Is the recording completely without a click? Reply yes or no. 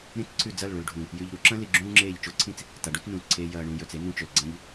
no